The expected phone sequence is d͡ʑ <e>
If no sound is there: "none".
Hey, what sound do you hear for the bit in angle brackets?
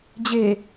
e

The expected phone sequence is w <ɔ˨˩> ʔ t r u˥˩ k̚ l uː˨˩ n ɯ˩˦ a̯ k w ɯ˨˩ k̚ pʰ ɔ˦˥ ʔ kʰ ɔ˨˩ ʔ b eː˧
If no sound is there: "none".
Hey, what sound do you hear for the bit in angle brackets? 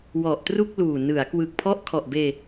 ɔ˨˩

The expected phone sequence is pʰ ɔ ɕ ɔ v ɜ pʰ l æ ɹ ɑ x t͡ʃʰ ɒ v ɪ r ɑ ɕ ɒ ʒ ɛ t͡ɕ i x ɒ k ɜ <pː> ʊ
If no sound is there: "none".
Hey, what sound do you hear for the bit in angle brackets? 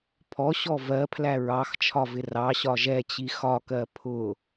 pʰ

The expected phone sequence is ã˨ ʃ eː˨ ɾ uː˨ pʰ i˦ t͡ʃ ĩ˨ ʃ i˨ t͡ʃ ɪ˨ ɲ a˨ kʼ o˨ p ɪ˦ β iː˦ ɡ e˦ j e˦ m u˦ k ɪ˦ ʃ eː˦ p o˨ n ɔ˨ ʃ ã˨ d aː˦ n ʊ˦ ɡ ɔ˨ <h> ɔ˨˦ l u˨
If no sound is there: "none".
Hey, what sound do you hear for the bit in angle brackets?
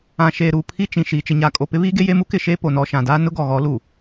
ɣ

